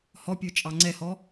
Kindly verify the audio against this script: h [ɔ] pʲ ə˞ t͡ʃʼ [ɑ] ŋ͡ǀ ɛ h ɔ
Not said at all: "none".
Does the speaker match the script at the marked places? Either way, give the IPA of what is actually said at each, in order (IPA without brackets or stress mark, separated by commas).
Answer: ɔ, ɑ